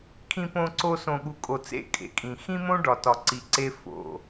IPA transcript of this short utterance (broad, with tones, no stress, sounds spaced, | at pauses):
kʰ ĩ˨ p õ˨ ǀ o˨ s õ˨ ɠ u˨ kʼ o˨ t͡s ḛ˦˨ kʼ ḛ˨ kʼ ĩ˨ x ĩ˦ m õ˦ ɖ ɒ˨ t ɒ˨ ǀ i˨ ǀ e˦ f o̰˨